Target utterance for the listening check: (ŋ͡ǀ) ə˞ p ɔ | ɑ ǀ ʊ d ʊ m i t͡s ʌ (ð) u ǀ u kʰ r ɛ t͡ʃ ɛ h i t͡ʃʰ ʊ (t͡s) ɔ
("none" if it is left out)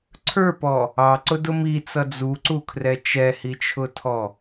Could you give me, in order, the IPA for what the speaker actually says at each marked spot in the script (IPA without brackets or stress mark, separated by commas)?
ǀʰ, d͡z, tʰ